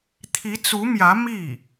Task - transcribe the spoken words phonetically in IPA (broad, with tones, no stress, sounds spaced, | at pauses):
t̪ʰ i˧˥ t͡s u˧˥ m j ä˧˥ m i˥˩